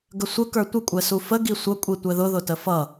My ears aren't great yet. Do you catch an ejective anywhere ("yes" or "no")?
yes